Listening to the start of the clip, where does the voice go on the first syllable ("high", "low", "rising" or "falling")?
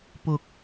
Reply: low